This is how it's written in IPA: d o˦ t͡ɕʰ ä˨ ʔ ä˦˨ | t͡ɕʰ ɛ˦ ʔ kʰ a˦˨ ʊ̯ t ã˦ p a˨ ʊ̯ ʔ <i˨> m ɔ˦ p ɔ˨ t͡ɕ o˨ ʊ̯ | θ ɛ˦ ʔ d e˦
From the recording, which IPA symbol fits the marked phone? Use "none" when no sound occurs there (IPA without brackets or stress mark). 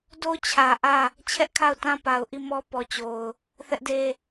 i˦˨